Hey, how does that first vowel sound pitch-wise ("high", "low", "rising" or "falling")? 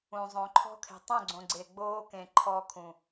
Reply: low